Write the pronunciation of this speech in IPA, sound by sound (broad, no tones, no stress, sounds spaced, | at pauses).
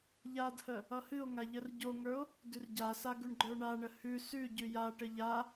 ʎ a d h ə | ʌ h ɨ o̯ ŋ a ʎ ə r ɟ o ŋ ə˞ o̯ | d ʉ r ɟ a s a ɡ ʉ ɳ ɡ͡ǃ ə˞ ɳ a ɳ ə h ʉ s ʉ ɟ ʉ j a ʈ ə ʎ a